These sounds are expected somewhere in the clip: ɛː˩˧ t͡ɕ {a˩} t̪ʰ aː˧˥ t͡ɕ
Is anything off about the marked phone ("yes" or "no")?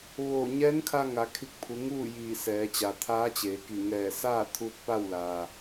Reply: no